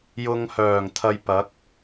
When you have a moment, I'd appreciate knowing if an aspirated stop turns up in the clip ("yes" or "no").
yes